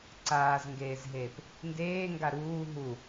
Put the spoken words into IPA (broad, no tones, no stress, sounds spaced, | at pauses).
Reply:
ǀ aː z ŋ ɡ eː z ɦ eː p | n d eː ŋ ɡ a ɾ uː ɦ u